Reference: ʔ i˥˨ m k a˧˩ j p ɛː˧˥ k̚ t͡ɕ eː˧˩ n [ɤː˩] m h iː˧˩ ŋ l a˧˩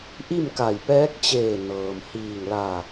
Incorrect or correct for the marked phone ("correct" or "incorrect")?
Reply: correct